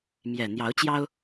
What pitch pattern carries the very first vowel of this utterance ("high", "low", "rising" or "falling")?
low